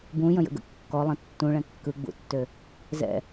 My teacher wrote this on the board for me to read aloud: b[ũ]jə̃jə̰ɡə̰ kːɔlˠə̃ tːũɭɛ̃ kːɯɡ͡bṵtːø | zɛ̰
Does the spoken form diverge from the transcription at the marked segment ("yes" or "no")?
no